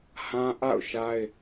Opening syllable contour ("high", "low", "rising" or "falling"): high